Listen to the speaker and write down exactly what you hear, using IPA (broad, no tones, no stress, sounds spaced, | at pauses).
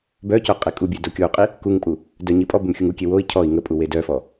b œ c œ qʼ e kʼ u bʲ e d o kʲ o u̯ qʼ i | k u ŋ pʼ u | d œ ɲ i pʼ ɔ b ə m xʲ u ŋ u kʲ e w o i̯ cʰ ɔ i̯ ŋ ə pʼ u w e d œ f ɔ